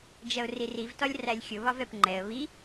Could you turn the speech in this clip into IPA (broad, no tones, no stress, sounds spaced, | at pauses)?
d͡ʒ ɜ ʊ̯ r i r i v t ɒ lʲ r æ lʲ xʲ ʊ β ɒ v ɛ p ŋ͡ǃ ɛ ə̯ β i